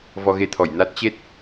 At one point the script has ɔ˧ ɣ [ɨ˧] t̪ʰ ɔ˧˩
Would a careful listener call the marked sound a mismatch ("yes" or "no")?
yes